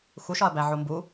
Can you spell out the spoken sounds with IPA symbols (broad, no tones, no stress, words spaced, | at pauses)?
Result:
xuʃɒɐ̯bæ ʕombu